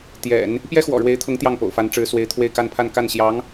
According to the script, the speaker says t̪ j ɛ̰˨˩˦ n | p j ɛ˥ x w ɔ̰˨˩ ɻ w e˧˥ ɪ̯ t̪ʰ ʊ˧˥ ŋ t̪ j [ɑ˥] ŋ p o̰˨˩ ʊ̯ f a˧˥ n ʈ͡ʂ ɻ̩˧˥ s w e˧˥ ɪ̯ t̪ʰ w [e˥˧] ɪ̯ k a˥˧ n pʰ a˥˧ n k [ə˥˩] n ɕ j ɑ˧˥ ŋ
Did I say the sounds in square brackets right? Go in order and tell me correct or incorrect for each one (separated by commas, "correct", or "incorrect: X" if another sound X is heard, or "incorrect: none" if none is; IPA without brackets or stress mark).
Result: incorrect: ɑ˥˩, correct, incorrect: a˥˩